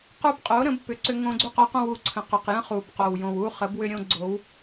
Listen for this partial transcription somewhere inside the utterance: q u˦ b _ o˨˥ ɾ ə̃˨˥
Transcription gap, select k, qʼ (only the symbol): qʼ